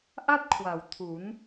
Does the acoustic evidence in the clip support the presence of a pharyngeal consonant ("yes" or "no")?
no